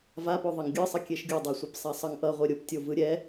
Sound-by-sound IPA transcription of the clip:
v a p o ðˤ ʌ ŋ ɡʲ ɯ sˤ ʌ kʲ e ʃ ɡʲ u dˤ a sʷ ɯ p sˤ a sˤ ʌ ŋ ʔ ʌ ʁʷ e ɾʲ o p tʲ o v ɯ ɾʲ ɛ

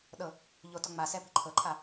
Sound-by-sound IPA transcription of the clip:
ɗ ɤ | ʎ o t ɔ ŋ͡m a s ɛ p i̤ ǃʰ ɤ ǃʰ a

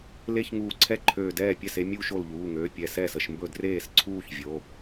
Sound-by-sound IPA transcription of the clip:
l e˥˧ ç ŋ uː˧˩ ǀʰ ɛ˥˧ ǃʰ øː˧˩ d ɛː˥˩ pʲ ɛ˥˩ s e˥˧ mʲ uː˥˧ ʃ o˧˩ l ʎ uː˩˧˩ ŋ øː˩˧˩ pʲ ɛ˧˩ s ɛː˥˩ s ə˥˩ ʃ m b ɵ˥˩ d r eː˥˩ s ǀʰ uː˥˧ ç vʲ o˩˧˩

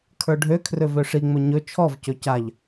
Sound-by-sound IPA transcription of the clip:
kʰ ə˞ ɖʱ ø kʰ r ø v ø ʂ i ŋ͡m ɵ ɲ ɵ t͡ʃʰ ɔ v c ɵ c a ʎ

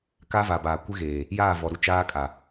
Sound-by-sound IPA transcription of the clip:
k a˦ v a˨ b aː˨ kʷ ɪ˦ ɣ eː˨ | j aː˦˨ v ɔ˨ ɾ u˦ t͡ʃ aː˦ kʼ a˨

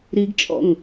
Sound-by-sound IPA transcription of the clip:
ɾ i ɡ t͡ʃʼ ɔ̰ ŋ

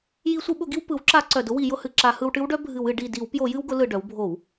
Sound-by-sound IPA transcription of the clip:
j i˧˩˧ sʷ ɨ˧˩˧ ɓ ʊ˧˩˧ ɡ i˧ w p ɯ˩˧ w ǁ a˧˩˧ ǀ œ˨˩ d ʊ˧˥ w i˧˩˧ j ʊ˧ h ɨ˨˩ ǁ a˧˩˧ h ɯ˧ w ʈ ɨ˧˥ w ɖ œ˧˥ bʱ ɨ˧˩˧ w ɨ˧˩˧ ɖ i˨˩ d i˧˩˧ w p j o˧˩˧ j ɨ˧ w ɡ ʊ˩˧ l ɯ˨˩ ɖ œ˩˧ w bʱ o˧˩˧ w

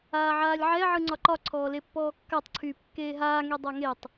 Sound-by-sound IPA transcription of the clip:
aː ʕ aː lʲ ʕ ɛ ʕ ɯ ŋ͡ǀ ɒ ǃ ɒ ǀʰ ɔː l e pː ɔː kː a tˤ ǀʰ yː p kː eː ɦ aː ŋ e dˤ a ŋ e tˤ

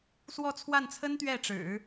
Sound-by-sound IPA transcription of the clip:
s w ɔ˥˧ t͡sʰ w a˥˩ n t͡sʰ ə˥ n t̪ ɥ ɛ˥˩ ʈ͡ʂ ɻ̩˨˩˦

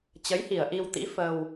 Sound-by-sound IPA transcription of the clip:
t͡ɕ ə˨˦ j h i˨˩ ə̯ ʔ i˧ w t̪ ḭ˧˥ f ə˧ w

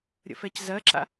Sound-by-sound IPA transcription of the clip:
ɾʲ ə̰ f ɛ c z ɜ ǁ a̰

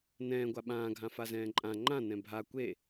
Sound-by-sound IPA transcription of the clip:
n ɛ̃ː ɡʷ a ɓ ãː ɡʱ ã f a z ɛ̃ː ǃʼ ã ŋ͡ǃ ã n ɛ̃ bʱ a kʷ e

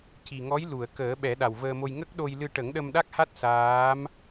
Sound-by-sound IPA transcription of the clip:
c i˨˩ ŋ ɔ˧˥ j l u˨˩˨ ə̯ k əː˨˩˦ ɓ ɛ˨˩˦ ɗ a˨˩ w v əː˧ m o˧ j ŋ ə˦˥ k̚ ɗ o˧ j l ɨ˧ ʈ ə˨˩˦ ŋ ɗ ə˧ m ɗ a˦˥ k̚ h a˦˥ t̚ s aː˧˥ m

